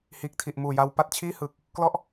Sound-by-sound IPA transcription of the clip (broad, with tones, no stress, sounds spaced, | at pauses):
h iː˨˩ k̚ tʰ i˨˩ ʔ m uː˨˩ j a˧ w p a˥˩ t̚ t͡ɕʰ iː˥˩ h ɯ˨˩ k̚ | k l ɔ˥˩ ʔ